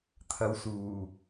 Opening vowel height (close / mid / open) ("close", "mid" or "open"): open